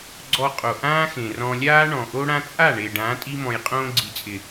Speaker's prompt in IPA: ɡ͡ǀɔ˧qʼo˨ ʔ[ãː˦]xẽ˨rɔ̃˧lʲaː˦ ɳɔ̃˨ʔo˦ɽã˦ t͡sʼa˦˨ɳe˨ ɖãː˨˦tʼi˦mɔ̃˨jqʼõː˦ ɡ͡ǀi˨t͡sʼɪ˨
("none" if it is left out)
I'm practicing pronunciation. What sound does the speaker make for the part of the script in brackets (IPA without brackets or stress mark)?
ãː˦